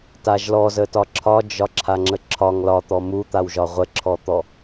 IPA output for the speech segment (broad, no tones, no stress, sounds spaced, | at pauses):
t a ʒ l ɔ z ə t ɒ ǁʰ ɒ d͡ʒ ɒ ǁʰ a ŋ͡ǁ ə ǁʰ ɒ ŋ l ɒ t̪ ɔ m u t̪ a w ʒ ɒ ʁʷ ə ǁʰ ɔ t̪ ɔ